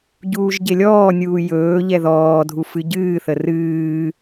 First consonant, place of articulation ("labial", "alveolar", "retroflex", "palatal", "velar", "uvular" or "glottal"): palatal